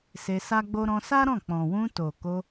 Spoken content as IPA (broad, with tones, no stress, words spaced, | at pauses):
se˧sa˦ɡ͡bo˦ ɾɔ̃˧sa˦ɾɔ̃˦˨ k͡pɔ̃˨wũ˧ to˨ko˧